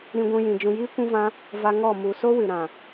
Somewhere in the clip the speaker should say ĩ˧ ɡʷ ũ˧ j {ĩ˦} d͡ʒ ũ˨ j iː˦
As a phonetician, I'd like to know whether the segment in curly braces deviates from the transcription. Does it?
yes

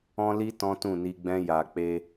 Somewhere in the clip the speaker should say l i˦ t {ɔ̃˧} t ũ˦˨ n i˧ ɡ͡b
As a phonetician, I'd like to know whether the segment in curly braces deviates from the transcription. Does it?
yes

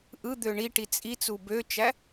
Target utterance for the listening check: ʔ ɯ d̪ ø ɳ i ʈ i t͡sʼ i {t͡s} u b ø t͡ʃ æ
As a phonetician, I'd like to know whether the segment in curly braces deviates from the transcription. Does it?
no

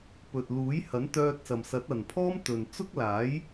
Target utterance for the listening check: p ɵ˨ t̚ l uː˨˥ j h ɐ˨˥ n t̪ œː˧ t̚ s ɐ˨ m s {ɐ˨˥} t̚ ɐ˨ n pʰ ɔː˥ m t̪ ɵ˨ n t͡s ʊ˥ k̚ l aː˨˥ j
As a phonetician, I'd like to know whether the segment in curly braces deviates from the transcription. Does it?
no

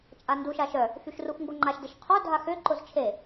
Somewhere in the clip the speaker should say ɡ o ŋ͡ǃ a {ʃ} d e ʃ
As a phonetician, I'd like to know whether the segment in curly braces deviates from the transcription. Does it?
no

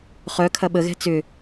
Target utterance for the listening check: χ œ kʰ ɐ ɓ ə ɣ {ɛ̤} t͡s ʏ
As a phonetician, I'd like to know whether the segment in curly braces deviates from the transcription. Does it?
no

